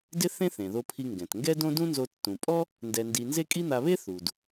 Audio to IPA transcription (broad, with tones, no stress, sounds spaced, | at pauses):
d ɪ˥ θ ẽ˥ θ ẽ˩ ð o˧ pʰ i˧ ŋ ɡ ɛ̃˩ t ŋ ɡ ɛ˥ d õ˥ d ũ˥ n z o˧ tː ũ˩ pʼ ɔ˥ | n d ɛ˧ n d i˧ n z e˥ kʼ i˥ n̪ a˧ β e˥ θ u˩ d